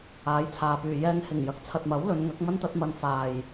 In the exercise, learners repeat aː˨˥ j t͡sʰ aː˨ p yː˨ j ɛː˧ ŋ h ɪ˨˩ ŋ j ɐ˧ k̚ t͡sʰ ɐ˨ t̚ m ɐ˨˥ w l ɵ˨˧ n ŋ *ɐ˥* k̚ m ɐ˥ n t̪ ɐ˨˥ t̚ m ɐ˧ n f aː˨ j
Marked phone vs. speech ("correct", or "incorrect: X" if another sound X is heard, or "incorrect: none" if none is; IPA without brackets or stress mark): incorrect: ɐ˨˥